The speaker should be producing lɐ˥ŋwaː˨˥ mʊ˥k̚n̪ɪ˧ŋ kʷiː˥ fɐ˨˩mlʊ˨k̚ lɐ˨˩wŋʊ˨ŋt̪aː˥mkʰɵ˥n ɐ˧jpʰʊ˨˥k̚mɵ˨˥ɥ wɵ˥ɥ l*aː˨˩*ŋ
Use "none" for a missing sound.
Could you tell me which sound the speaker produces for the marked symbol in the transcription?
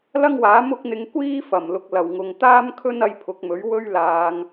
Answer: aː˧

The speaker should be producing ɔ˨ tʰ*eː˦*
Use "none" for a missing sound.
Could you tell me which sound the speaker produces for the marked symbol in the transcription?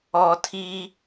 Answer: iː˦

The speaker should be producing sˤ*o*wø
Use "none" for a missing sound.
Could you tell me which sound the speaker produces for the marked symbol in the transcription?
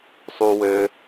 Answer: u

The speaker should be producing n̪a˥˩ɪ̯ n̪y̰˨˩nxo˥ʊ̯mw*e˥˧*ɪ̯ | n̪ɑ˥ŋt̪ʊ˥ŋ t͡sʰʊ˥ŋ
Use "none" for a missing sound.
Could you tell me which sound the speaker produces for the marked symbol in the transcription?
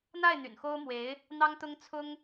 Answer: e˧˥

